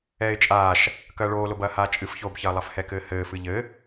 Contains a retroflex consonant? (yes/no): yes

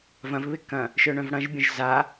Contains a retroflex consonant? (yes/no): yes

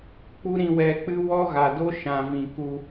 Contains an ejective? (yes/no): no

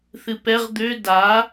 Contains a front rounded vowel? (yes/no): yes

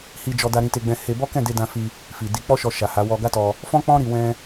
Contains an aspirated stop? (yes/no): no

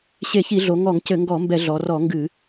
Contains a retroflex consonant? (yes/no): no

